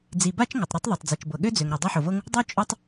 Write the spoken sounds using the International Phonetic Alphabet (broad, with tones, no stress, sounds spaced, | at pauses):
d͡z i˩ b a˥ t͡ʃ ŋ o˩ tˤ ɾ o˥ tˤ ðˤ ɤ˩ tˤ d͡z i˩ t͡ʃ b ɤ˩ ɠ ø˥ d͡z ø˩ ŋ ɾ ɤ˩ dˤ o˥ ħ o˩ v ɤ˥ ŋ | dˤ o˥ t͡ʃʼ o˥ tˤ